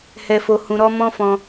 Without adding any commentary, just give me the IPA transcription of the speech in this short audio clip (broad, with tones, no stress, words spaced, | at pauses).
hɛ˧fo˧ hũ˧ɾɔ˦ mɔ̃˦fɔ̃˧